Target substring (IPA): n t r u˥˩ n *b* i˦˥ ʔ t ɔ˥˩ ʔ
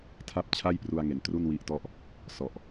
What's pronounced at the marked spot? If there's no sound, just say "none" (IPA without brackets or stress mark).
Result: w